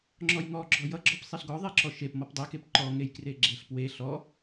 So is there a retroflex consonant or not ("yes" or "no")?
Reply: no